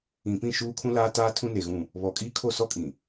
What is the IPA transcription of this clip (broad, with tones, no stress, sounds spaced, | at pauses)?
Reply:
ĩ˨ p ĩ˦˨ ʃ uː˦ kʰ ũ˦ l aː˦ t aː˦ tʰ ũ˦ n e˨ ɣ ũ˦˨ | β ɔ˨ kʼ iː˦ kʰ o˦˨ s ɔ˦ kʼ ĩ˨